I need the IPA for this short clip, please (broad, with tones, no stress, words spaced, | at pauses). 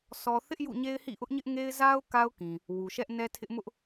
sʰɔ˨ θɪ˦ʔ jṵ˦˨ɲe˦ɪ̯hḭ˦˨ ʔʊ˦ʔɲɪ˦ʔŋe˦ɪ̯ za˦ʊ̯ ka˦ʊ̯kĩ˨ | wu˨ʃɛ˦ʔnɛ˦tʰɪ˦ʔ mʊ˦ʔ